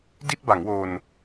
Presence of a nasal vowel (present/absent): absent